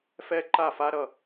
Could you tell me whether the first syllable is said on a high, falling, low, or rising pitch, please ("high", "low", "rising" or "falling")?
high